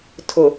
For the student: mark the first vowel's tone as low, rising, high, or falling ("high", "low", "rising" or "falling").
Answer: low